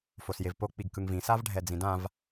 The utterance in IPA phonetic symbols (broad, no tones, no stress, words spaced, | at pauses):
fosjevpo k͡piɡkɯŋvĩ savɖʱɛd͡zĩdãv